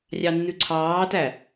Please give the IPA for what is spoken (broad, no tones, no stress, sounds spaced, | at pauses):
rʲ ɑ nː ʉ ǀʰ ɑː t æ